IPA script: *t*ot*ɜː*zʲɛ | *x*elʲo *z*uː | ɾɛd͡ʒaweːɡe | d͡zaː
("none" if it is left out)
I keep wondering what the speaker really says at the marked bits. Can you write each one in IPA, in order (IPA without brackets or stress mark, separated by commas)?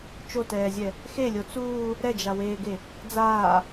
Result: t͡ʃ, ɛː, x, t͡s